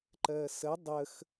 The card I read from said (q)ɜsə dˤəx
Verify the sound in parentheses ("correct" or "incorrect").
incorrect